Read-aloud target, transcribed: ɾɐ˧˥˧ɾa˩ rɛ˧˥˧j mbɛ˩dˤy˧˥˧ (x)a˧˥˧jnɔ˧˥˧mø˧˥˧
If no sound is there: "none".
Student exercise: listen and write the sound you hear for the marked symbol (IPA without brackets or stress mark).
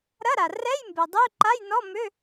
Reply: ǃ